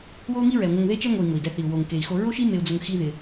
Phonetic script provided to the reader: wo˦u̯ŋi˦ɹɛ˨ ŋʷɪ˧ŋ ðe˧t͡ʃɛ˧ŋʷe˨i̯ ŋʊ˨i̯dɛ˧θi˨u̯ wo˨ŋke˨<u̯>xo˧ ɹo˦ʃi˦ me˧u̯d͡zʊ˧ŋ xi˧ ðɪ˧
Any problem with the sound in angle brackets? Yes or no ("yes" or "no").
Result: yes